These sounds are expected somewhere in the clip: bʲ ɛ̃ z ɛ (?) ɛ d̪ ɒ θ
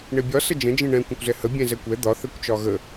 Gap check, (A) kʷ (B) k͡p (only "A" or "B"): A